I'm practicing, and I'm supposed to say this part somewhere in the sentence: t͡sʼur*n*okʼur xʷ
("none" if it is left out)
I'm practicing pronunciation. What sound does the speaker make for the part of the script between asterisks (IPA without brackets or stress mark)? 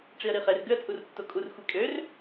tː